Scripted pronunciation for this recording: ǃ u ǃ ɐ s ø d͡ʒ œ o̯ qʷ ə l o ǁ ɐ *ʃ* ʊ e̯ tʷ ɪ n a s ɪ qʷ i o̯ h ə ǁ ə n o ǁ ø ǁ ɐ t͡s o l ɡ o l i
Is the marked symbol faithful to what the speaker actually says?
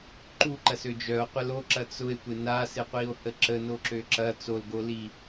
no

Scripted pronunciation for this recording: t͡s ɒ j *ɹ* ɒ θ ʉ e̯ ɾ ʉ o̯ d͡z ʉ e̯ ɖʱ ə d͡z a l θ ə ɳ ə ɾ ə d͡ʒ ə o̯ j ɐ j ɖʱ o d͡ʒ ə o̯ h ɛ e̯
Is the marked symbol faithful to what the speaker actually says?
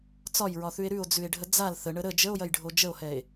yes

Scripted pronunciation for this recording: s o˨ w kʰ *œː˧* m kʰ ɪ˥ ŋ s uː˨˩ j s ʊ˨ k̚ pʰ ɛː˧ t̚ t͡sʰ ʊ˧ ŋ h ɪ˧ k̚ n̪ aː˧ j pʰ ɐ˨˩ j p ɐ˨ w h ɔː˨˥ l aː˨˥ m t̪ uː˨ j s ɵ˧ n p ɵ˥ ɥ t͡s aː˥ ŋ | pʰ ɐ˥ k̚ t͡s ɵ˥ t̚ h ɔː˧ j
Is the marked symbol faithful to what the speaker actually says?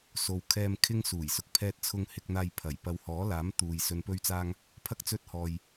no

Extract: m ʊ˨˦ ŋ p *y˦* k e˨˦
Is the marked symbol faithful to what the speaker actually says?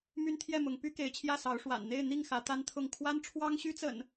yes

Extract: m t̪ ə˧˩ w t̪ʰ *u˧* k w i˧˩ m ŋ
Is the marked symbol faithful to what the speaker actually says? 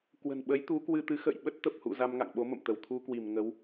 yes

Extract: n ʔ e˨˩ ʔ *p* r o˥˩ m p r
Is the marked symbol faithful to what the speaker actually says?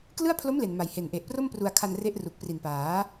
yes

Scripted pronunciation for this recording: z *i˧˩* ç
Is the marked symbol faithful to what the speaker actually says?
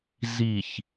yes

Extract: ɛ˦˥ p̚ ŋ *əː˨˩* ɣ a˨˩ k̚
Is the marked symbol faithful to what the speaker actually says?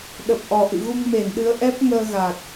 no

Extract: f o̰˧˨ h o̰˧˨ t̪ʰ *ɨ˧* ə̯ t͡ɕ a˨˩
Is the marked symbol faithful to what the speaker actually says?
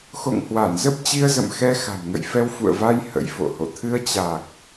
yes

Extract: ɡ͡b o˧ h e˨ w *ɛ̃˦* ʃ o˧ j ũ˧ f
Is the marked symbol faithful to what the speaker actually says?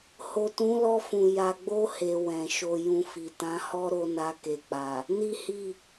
no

